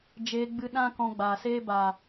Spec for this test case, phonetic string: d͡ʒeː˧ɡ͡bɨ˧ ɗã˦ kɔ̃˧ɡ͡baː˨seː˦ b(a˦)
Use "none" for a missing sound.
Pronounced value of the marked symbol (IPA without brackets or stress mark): a˨